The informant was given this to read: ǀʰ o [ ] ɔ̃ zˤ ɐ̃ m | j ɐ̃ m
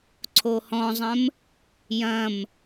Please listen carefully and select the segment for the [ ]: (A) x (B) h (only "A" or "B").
B